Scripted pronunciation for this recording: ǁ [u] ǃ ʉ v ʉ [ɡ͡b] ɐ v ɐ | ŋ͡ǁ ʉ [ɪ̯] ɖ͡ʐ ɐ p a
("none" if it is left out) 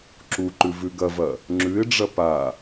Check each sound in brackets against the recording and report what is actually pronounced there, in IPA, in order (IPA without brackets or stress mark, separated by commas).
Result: u, ɡ, ɪ̯